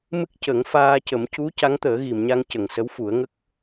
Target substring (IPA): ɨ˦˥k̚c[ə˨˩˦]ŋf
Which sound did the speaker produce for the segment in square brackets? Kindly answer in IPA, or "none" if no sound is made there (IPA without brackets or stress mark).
ə˨˩˦